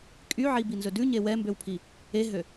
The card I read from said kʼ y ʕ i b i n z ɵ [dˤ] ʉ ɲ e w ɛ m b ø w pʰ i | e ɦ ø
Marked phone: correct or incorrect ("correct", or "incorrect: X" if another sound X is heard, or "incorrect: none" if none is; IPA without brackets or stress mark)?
incorrect: d